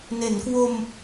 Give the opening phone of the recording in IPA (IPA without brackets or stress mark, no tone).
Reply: n